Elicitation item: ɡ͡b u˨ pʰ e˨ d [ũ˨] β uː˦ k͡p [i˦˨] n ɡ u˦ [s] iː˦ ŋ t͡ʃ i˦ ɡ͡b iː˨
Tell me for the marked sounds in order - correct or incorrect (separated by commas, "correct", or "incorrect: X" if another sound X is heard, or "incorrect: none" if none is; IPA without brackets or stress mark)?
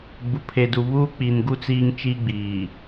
incorrect: u˨, incorrect: i˨, incorrect: t͡s